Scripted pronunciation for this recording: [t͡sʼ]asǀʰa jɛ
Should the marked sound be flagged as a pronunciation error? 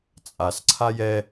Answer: no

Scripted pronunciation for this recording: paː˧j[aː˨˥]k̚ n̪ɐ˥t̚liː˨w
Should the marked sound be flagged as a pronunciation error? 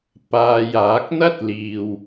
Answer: no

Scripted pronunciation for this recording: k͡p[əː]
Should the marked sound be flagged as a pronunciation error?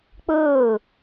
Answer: yes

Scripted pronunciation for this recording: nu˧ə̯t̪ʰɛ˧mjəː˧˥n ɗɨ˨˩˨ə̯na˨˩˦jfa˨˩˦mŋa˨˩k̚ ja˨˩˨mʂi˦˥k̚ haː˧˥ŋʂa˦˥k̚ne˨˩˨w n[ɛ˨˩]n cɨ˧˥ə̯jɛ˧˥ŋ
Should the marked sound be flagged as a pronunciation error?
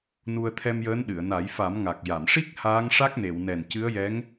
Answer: no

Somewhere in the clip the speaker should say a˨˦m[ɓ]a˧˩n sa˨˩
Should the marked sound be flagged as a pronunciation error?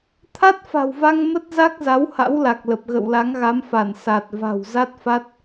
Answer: yes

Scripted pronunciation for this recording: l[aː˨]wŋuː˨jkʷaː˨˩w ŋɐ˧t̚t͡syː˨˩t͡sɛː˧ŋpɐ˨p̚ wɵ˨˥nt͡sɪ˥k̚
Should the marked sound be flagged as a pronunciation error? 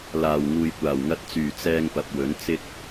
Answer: yes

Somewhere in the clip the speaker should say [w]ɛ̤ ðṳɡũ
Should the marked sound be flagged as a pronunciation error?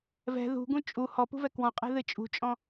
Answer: yes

